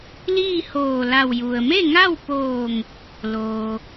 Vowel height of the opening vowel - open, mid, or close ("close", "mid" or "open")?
close